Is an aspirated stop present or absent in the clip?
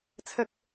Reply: present